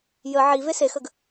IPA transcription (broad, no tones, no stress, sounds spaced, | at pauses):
j ə ʕ i v e s e x ə ɡ